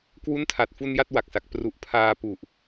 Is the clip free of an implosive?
yes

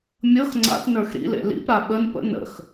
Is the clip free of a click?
no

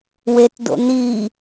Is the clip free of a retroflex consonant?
yes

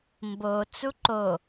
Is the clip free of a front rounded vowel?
yes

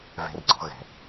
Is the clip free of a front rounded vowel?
yes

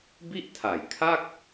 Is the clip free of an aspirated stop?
no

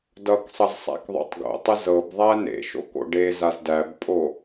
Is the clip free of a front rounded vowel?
yes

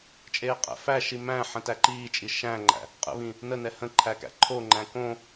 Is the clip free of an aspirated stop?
no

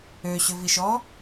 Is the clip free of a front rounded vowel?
no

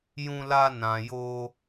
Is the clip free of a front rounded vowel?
yes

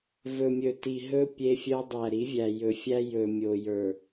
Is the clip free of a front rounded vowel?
no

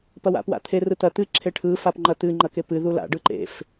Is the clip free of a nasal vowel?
yes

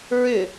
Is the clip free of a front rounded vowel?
no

